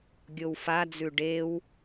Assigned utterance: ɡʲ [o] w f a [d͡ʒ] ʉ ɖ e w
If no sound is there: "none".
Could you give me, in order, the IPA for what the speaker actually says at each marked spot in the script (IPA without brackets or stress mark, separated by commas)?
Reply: o, d͡z